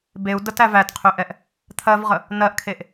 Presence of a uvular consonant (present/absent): present